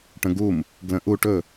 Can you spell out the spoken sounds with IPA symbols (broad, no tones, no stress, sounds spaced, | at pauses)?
ʈ ə̃ ɡ u m | ɡ l ə̃ ʔ u ʈ ɵ